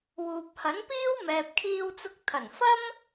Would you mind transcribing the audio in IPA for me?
wuː˨p̚hɐ˨˥npiː˥w mɛː˨p̚kʰiː˧wt͡sʊ˧k̚t̪ʰɐ˨˩n fɐ˥m

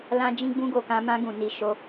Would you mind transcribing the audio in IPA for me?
lã˦ d͡ʒĩ˦ɡ͡bũ˦ɡo˦˨kã˧ mã˦ɡũ˦˨ ni˧ʃo˧

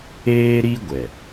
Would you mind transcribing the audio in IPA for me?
eː˦ɾi˦ɡʷɛ˨

